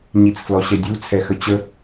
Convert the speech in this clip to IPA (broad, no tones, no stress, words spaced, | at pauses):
ɲit͡sflɔɕɛdʲu t͡sʰɛxət͡ɕə